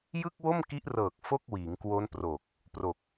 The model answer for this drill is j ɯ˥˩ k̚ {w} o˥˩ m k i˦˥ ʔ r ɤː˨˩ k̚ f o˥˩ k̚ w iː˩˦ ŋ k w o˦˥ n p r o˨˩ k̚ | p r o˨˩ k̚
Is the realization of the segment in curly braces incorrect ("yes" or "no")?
no